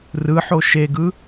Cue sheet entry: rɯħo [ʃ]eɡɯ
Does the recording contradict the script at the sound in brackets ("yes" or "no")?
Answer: no